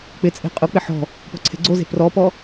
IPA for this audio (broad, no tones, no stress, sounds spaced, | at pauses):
k͡p ɪ t͡sʼ e̤ qʼ ʊ k͡p ɪ ħ ɔ̤ | p ɔ̤ ǀʰ e̤ ɡ͡ǀ o z e̤ p r ɔ p ɔ